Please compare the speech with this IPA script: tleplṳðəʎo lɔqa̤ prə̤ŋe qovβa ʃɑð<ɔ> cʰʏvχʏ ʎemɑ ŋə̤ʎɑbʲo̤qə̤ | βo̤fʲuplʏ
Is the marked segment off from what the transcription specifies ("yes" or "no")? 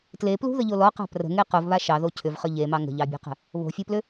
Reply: yes